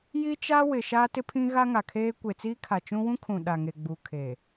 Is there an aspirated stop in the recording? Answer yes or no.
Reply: yes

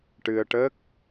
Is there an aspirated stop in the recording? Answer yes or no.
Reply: no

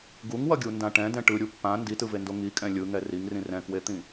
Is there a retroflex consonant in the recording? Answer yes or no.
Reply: yes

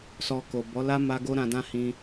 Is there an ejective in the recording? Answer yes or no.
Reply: no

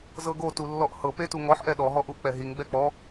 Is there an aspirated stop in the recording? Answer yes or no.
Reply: no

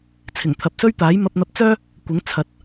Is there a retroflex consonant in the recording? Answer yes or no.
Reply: no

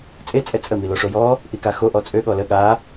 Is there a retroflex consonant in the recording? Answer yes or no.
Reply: yes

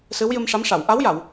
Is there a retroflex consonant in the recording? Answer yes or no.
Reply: yes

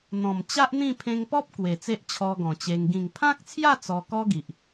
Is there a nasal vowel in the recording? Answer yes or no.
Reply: yes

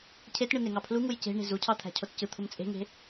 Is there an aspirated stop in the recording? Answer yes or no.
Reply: yes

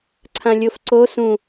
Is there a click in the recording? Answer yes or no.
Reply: yes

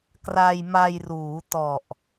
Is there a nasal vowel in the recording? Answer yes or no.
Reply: no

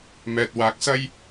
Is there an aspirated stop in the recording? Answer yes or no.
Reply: no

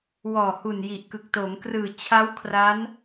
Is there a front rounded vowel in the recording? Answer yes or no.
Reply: no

